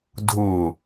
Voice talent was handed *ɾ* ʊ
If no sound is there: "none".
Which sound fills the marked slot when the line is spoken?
dʱ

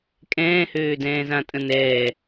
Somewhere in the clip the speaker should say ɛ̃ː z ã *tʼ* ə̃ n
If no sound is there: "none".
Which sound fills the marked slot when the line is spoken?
tʼ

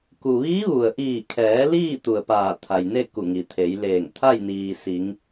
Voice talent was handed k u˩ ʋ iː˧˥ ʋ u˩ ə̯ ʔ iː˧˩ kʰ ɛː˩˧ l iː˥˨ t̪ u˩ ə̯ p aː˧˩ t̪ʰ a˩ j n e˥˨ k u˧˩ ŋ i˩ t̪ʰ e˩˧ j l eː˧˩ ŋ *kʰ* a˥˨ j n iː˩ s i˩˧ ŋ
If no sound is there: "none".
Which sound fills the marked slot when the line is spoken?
t̪ʰ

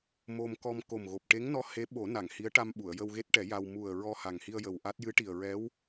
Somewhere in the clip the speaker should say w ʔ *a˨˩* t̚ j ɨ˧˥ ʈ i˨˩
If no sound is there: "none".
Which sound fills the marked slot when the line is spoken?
a˦˥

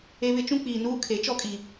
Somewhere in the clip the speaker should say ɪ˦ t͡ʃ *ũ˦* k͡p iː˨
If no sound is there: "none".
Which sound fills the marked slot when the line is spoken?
ũ˦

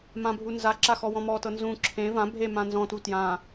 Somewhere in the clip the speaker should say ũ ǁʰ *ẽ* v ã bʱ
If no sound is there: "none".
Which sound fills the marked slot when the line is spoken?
ẽ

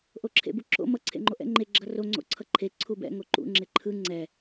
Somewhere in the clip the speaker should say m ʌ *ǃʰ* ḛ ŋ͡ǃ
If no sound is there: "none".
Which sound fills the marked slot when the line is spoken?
ǀʰ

